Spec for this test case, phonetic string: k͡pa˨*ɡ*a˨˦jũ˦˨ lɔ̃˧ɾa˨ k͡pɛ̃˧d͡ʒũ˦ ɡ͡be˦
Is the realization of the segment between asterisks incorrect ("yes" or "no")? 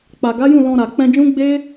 no